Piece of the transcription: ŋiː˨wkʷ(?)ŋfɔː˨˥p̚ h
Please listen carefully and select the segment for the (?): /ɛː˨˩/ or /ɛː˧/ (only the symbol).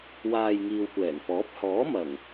ɛː˨˩